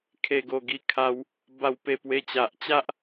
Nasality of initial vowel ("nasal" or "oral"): oral